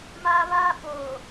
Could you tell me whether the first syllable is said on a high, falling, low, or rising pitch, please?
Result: high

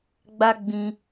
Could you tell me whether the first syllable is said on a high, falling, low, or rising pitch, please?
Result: high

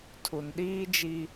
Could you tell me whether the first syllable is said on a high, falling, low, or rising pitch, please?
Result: low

